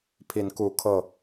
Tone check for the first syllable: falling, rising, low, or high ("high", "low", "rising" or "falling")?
rising